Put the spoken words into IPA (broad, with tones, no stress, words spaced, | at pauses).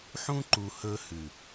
ħũ˦ǃu˨ hɵ˦hʉ˨